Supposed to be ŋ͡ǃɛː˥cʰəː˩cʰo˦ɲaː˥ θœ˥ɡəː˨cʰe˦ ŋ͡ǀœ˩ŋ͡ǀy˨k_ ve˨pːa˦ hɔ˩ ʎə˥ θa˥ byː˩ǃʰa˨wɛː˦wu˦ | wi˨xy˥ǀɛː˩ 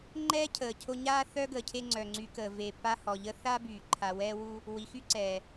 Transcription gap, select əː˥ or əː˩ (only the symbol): əː˩